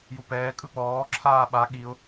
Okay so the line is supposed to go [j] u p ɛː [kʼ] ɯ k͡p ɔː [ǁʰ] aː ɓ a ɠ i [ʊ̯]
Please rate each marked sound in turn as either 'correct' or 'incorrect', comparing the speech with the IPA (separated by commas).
correct, correct, correct, correct